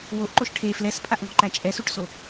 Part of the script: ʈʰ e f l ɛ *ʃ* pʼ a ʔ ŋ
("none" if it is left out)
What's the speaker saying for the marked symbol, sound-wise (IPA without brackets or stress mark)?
s